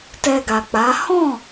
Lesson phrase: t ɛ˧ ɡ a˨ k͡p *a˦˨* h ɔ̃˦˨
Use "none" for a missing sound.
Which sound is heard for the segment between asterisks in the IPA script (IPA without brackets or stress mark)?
a˨˦